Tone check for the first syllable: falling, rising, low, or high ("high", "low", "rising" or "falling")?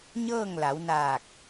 falling